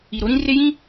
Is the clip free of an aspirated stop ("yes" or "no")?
yes